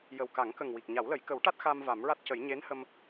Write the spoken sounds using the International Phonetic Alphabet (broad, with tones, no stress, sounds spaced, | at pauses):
j ə˨˩ w k a˨˩˦ ŋ k ə˨˩ ŋ w i˨˩ k̚ ɲ a˨˩˦ w l ə˨˩˦ j k ə˨˩˦ w ʈ a˦˥ t̚ x a˧ m v a˨˩˦ m ɹ a˦˥ t̚ c ə˨˩˦ j ɲ e˧˥ n h ə˧ m